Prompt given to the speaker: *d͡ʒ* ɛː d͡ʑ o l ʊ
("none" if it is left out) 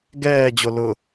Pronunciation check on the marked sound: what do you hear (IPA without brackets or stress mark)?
ɡ